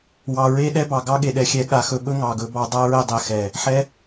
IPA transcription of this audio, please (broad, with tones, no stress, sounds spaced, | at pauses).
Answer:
w ɑ˨ ɹ e˦ ɗ ɛ˦ b ɑ˨ ɡ ɑ˦ ɠ e˨ ɗ ɛ˧ xʲ ɛ˧ ɠ a˧ x ɵ˧ ɓ ɵ˦ ŋ ɑ˨ ɡ ɵ˧ b ɑ˧ dˤ a˦ ɹ ɛ˧ dˤ ɛ˨ x ɛ˨ | ħ ɛ˦